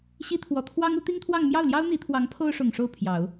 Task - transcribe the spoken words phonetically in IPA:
ɕ i˥ t̪ʰ w ɔ˧˥ t̪ʰ w ɑ˥ ŋ u˧˥ t̪ i˥ ŋ t̪ʰ w ɑ˥˧ ŋ m j ɑ˥˩ ʊ̯ l j ɑ˥ ʊ̯ n̪ i˧˥ t̪ʰ w ɑ˧˥ ŋ pʰ o˥ ʊ̯ ʂ ʊ˨˩ ŋ ʂ o˥˩ ʊ̯ pʰ j ɑ˨˩˦ ʊ̯

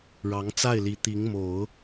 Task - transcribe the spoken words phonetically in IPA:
ɻ ɑ˧˥ ŋ t͡s a˥˩ ɪ̯ l i˧˥ t̪ i˧˥ ŋ m o˨˩˦ ʊ̯

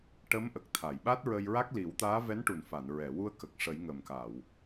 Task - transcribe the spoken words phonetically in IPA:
ʈ ə˧˥ m ʔ ə˨˩ k̚ t̪ʰ a˨˩˨ j ɓ a˦˥ t̚ ɹ ə˧ j ɹ a˦˥ k̚ l i˨˩˦ w t̪ aː˧˥ v ɛ˧˥ n ʈ u˨˩ n f a˨˩˨ n ɹ ɛ˨˩˨ w u˧ ə̯ k ə˨˩ k̚ ʂ ə˨˩˦ j ŋ ə˨˩ m k a˨˩˨ w

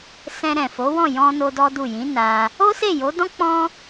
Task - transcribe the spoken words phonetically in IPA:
s ɛ̃˧ ɾ ɛ̃˨ f o˨˦ w ɔ̃˦˨ j ɔ̃˧ n o˦ d ɔ˦ d u˦˨ j ĩ˨˦ n a˧ | o˦ s e˦˨ j o˨˦ d ɔ̃˦ k͡p ɔ̃˦

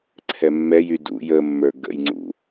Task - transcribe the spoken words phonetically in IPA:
ǀʰ ɛ mː ɛ j y d ṵ j ə mː ə˞ ɡ ə̰ j ŋ͡ǀ ṵ

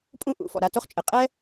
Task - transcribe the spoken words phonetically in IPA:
pʼ ũ˥ ʔ ṵ˩ f ɔ̰˩ ɾ a˧ t o˥ χ t͡ʃʼ ɘ˩ qʼ ɛ˥

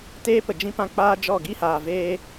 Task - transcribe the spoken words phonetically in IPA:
t eː˦ p ə˨ d͡ʒ ĩ˧ p ã˧ k͡p aː˦ d͡ʒ ɔ˦˨ ɡ i˦ h aː˨ v eː˧

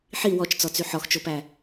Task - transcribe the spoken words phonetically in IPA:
ħ i w ɔ t͡ʃ t͡s ɔ t͡s y ħ ɔ x t͡ʃ o p æ

